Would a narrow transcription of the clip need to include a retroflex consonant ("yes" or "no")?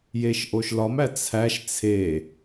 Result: no